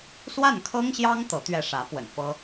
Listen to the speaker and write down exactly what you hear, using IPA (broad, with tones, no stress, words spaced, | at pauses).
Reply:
swa˥˩nkʰɤ˥ŋɕjɑ˥ŋ t̪ɤ˧˥t̪ɥɛ˥˩ ʂä˧˥ pwə̰˨˩nfɤ˥